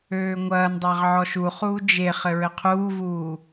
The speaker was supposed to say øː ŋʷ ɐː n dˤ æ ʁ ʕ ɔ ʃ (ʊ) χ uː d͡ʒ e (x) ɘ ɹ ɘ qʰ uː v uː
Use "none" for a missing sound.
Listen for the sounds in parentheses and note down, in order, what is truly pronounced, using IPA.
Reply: u, χ

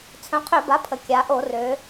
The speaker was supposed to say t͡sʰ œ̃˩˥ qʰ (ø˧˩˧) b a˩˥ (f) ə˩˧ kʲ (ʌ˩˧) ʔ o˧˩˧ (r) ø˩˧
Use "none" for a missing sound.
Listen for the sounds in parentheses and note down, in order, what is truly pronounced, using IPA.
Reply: ø˧˩˧, pʰ, a˩˧, r

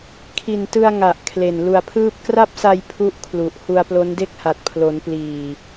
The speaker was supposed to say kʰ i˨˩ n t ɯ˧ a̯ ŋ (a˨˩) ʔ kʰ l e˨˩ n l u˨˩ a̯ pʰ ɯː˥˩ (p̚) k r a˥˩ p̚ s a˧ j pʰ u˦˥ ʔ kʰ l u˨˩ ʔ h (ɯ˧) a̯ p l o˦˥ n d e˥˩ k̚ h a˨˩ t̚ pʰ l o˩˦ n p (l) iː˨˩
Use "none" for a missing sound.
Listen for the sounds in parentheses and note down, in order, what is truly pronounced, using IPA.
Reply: a˨˩, p̚, u˧, l

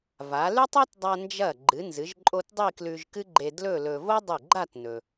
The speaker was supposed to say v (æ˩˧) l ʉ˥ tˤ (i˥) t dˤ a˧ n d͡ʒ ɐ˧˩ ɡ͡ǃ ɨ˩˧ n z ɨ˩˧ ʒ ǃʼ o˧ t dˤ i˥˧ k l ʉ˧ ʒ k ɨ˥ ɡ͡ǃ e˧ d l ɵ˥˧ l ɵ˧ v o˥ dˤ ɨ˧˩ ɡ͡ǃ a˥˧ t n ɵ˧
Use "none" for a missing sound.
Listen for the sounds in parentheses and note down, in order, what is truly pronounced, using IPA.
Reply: a˩˧, i˥

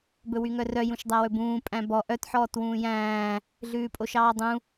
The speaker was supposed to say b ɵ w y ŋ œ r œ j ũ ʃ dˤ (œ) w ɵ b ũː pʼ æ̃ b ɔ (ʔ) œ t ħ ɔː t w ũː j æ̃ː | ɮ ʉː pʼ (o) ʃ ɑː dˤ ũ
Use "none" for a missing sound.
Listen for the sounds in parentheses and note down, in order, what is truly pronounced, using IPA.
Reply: æ, ʔ, o

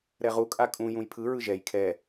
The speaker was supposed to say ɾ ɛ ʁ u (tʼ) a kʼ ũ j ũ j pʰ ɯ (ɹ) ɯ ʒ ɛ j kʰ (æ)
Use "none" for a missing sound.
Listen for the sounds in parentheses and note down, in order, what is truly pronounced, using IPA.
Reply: kʼ, ɹ, ɛ

